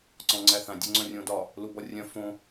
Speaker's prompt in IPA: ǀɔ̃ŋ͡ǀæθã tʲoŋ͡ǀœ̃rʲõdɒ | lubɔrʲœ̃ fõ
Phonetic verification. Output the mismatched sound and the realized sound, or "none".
tʲ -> dʲ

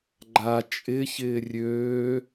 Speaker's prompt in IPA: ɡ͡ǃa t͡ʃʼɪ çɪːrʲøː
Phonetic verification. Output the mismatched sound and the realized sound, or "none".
none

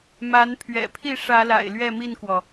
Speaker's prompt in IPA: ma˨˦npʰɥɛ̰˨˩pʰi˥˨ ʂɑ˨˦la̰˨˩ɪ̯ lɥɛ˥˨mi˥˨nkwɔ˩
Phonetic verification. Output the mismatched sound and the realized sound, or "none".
ɑ˨˦ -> ä˨˦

